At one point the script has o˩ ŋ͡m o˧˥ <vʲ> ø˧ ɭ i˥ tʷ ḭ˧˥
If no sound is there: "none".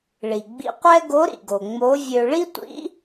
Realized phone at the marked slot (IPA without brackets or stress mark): vʲ